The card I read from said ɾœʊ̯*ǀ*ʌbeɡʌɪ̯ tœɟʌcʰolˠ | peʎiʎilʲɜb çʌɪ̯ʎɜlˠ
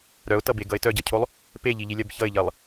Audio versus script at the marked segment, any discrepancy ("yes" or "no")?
yes